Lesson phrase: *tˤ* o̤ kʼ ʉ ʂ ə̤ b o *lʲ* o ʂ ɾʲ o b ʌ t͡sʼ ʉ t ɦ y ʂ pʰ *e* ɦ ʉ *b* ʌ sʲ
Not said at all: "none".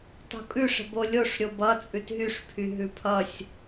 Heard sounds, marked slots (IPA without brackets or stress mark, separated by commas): tˤ, lʲ, y, pʰ